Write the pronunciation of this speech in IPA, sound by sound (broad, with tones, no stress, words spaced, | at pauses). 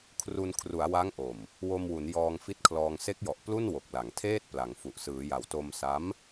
kʰru˧n kʰru˩˦a̯wa˦˥ŋʔo˨˩m | wo˧mwu˩˦n jɔː˧ŋfi˦˥t̚kʰlɔː˧ŋ se˦˥k̚jɔ˨˩ʔplu˥˩n wo˨˩k̚la˩˦ŋtʰeː˥˩t̚ pla˩˦ŋfu˨˩ʔ sɯː˩˦ja˨˩w to˧msa˦˥m